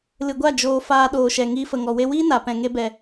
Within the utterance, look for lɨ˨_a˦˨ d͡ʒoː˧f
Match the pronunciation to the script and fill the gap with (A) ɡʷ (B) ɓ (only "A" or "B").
A